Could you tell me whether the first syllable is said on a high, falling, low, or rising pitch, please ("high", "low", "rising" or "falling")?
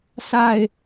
falling